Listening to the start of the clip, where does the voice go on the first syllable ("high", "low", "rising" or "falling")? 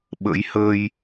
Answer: rising